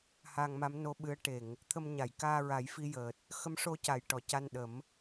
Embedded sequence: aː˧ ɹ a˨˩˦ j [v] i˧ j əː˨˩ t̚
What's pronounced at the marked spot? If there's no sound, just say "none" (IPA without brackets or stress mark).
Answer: f